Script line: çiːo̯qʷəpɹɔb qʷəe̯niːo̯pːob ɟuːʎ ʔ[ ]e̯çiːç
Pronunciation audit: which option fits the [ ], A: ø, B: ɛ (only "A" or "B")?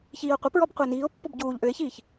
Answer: A